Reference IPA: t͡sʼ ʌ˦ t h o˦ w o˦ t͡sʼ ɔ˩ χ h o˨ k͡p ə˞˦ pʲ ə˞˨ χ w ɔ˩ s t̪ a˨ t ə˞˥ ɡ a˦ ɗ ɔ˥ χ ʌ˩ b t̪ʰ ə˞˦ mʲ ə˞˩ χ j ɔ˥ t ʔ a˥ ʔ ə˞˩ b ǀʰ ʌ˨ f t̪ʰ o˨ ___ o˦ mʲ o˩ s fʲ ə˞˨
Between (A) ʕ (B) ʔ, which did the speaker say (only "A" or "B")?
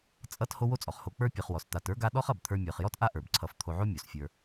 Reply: A